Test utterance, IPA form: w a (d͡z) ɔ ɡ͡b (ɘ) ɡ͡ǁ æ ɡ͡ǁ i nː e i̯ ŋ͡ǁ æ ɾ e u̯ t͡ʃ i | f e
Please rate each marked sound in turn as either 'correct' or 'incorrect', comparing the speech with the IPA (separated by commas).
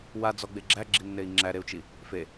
correct, incorrect